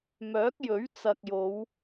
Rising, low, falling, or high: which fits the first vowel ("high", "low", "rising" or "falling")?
rising